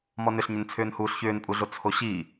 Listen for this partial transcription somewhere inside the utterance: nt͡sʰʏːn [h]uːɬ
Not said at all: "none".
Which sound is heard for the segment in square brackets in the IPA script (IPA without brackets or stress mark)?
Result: h